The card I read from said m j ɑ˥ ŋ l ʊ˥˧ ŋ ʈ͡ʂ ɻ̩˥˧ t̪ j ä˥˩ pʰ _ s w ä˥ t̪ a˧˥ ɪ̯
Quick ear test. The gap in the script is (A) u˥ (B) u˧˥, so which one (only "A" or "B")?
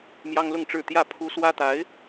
A